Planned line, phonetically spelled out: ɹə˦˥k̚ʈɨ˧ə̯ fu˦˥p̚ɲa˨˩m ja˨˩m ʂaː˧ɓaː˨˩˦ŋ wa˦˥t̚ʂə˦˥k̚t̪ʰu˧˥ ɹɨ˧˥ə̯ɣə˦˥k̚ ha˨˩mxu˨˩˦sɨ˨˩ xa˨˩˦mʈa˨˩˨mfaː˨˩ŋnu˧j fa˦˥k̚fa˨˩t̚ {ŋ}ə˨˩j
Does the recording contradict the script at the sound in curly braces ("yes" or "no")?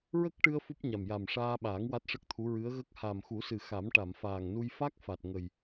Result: no